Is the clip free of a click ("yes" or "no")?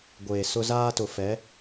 yes